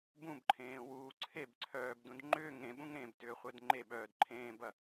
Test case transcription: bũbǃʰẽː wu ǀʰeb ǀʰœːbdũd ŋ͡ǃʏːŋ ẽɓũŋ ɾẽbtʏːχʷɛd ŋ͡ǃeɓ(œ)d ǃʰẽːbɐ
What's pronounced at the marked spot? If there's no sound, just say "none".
œː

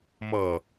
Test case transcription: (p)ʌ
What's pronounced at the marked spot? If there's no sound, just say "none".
m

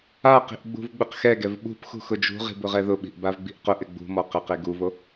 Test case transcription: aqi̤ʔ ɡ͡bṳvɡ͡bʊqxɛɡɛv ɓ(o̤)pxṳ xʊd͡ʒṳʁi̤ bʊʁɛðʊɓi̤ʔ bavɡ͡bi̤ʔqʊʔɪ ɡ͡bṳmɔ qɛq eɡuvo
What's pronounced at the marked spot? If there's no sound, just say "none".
ṳ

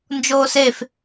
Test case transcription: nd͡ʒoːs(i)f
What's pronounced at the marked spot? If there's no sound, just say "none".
e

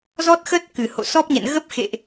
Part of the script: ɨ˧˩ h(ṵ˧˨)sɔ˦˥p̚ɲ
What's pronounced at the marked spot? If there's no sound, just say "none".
o̰˧˨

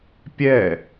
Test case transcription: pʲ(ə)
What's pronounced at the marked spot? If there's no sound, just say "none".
ɛ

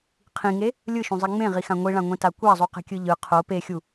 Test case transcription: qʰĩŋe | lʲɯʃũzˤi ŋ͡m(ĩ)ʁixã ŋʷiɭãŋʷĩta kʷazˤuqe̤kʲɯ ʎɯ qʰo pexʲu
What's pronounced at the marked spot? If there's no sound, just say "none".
ẽ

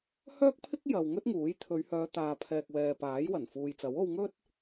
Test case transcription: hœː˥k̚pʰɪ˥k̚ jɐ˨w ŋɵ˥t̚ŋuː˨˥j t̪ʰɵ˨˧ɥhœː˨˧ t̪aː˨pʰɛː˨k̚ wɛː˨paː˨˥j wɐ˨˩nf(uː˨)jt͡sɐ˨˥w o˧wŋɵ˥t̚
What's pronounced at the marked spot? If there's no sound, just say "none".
uː˨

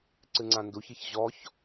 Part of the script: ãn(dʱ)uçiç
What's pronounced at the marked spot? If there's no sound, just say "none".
d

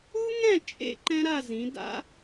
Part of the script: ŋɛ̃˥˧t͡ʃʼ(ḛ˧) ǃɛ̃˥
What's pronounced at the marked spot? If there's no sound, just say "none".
ḛ˧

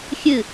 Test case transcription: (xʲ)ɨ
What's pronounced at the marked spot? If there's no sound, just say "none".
xʲ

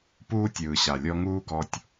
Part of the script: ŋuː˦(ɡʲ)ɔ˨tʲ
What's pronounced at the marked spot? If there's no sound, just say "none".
ɡ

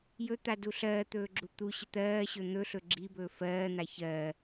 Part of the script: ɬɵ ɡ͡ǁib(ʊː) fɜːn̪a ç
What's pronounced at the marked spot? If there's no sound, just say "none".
ɵː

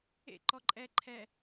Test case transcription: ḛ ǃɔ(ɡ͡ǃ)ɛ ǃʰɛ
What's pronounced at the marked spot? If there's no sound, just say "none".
ǃʼ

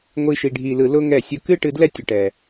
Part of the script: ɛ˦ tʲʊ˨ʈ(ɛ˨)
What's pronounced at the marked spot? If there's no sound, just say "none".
ɛ˨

